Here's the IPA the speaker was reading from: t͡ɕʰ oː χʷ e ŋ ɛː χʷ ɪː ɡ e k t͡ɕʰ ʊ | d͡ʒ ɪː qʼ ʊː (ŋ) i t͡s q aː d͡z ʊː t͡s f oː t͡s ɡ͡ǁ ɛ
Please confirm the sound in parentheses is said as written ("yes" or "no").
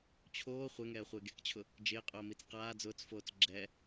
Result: no